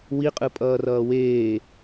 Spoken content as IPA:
wiqʼɯpʼʌːrʌː weː

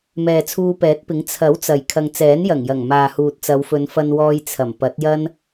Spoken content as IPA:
mɛː˨t͡sʰuː˧pɛː˨˥t̚pɪ˨˥ŋ t͡sʰɐ˨˥w t͡sɐ˨jkʰɐ˧ŋ t͡sɛː˨˥njɐ˨˩ŋjɐ˨˩ŋ maː˨huː˨t̚t͡sɐ˨˧wfɵ˨˧n fɐ˧nwɔː˧j t͡sʰɐ˨˩mpɐ˨˥t̚jɐ˥n

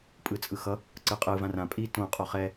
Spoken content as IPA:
pʼɯt͡sʼɯxʌ | ǀɯqʼɯ vãrã pʼi tõ qʼoχɛ

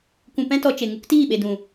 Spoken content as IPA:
kʷũ˧pɛ̃˦tɔ˧ t͡ʃe˨ ŋu˦ktiː˦˨ɓe˨ dũ˨

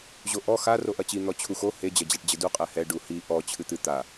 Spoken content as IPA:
ʑoʔɔ xa roʔɐt͡ɕi n̪ɔt͡ɕʰux o he d͡ʑɐd͡ʑaʈd͡ʑɘdu qʼɛhɛ ɖuhi ʔɔ t͡ɕʰɨt̪ɨ t̪a

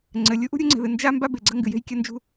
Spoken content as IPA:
ŋ͡ǀɘ˩ lʲu˥ʔṳ˥ ɾʲu˥ŋ͡ǀe̤˩ðɨ˩ nd͡ʒa˥ mba˥be˩ɡ͡ǀɐ˥ ŋɡɨ˩je̤˥j kʲɐ˥nd͡ʒṳ˥

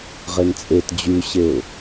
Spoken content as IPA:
ʁent͡sʼet d͡ʑyɕeʊ̯

